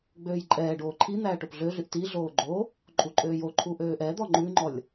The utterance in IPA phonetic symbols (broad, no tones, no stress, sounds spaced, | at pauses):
ɡ͡b øː j ǃʼ ɛː ɖ oː ǃʰ i n̪ æː ʈ o p ɮ ø ɮ y ʔ t i ɮ oː ɡ͡ǃ o | ǃʼ u ǃʼ øː j o ǃʰ u ʔ øː ʔ ɛ d̪ ɔ ŋ͡ǃ ʉ ŋ͡ǃ ɔ lʲ